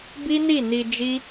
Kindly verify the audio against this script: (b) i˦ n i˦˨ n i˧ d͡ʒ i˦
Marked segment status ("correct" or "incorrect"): correct